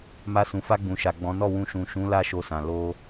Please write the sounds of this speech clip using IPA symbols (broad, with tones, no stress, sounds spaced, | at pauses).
m a˧ s ũ˨ f a˧ ɡ͡b ũ˨ ʃ a˨ ɡ͡b ɔ̃˨˦ n ɔ˦˨ w ũ˧ ʃ ũ˨ ʃ ũ˨˦ l a˦ ʃ o˧ s ã˨ l o˧